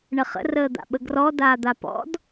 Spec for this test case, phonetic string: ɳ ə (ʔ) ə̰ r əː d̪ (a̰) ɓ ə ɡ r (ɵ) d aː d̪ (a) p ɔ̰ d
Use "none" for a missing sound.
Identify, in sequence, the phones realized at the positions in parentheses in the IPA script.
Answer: χ, a̰, ɔ, a

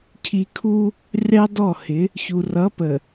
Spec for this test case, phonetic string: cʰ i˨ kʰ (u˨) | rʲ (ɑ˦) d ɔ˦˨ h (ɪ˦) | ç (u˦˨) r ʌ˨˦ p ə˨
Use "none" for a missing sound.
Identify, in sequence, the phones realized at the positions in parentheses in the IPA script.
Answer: u˦, ɑ˦, ɪ˨˦, u˨

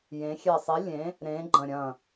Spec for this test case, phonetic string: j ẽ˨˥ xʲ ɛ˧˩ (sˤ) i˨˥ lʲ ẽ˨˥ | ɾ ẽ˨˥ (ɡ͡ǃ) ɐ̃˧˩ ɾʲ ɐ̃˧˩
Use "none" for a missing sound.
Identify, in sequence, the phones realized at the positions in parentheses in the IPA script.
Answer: sˤ, ɡ͡ǃ

